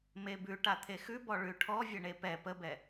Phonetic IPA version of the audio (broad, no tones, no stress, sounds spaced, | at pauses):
m e b ʉ ʈ a t̪ʰ e x ʉ b ɔ ɭ ʉ ʈʰ ɔ vʲ ə ɳ e p ɛ p ə b ɛ